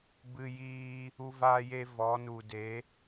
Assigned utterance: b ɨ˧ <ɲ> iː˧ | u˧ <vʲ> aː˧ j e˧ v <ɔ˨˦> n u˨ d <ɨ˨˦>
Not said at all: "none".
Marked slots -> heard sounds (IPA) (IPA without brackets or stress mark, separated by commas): j, v, ɔ˨˦, e˨˦